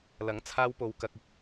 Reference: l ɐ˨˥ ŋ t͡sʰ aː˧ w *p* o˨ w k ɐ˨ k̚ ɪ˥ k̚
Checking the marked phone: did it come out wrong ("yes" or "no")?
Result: no